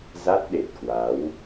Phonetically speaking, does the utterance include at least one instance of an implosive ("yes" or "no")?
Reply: yes